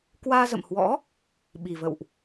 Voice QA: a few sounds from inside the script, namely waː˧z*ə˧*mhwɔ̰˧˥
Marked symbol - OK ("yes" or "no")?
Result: no